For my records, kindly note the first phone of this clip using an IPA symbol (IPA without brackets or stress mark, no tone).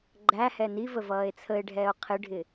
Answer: ɡ͡ǃ